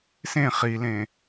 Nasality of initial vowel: nasal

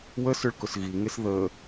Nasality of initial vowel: oral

